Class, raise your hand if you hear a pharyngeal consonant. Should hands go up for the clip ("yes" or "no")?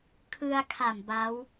no